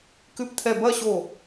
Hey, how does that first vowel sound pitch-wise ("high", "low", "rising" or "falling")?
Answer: falling